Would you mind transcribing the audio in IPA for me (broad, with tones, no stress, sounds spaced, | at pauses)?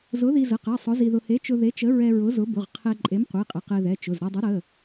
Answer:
z ʊ˨˥ ð i˧ z ə˩˧˩ q ɛ˩˧˩ sˤ ʊ˨˥ z i˧ ð ʊ˧ h e˨˥ t͡ʃ ʊ˧ ð e˨˥ t͡ʃ ə˨˥ ɹ ɛ˧ ɹ ʊ˨˥ z ʊ˨˥ b ʊ˩˧˩ ʁ qʰ ɛ˧ ǃʼ e˨˥ m qʷ e˩˧˩ qʼ ə˩˧˩ q ɛ˧ ð ɛ˩˧˩ t͡ʃ ʊ˩˧˩ z ɾ ɛ˧ dˤ ə˨˥ ɾ ə˩˧˩